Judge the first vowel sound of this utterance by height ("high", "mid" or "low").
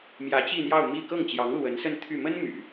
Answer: low